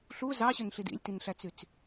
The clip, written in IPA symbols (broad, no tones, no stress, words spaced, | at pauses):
ɬu zɑɕønɬid ḭlʲtinɬæt͡syt͡s